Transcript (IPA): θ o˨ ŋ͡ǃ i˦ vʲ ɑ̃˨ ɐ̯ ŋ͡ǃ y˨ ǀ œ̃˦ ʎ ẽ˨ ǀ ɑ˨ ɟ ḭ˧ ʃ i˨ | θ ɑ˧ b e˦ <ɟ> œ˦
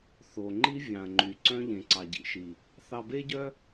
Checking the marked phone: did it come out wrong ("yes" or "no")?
no